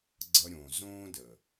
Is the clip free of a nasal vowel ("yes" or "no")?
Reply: no